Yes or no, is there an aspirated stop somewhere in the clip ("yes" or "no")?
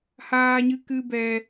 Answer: no